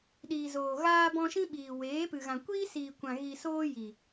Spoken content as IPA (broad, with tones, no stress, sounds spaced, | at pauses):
ɗ iː˨ z oː˨ ɣ aː˧ b ɔ̃˧ ʃ ĩ˦ ɓ iː˨ w eː˨˦ p ɨ˨ ɣ ã˨ kʷ iː˦ s iː˨ kʷ ã˨ ɣ i˨ s oː˧ j i˨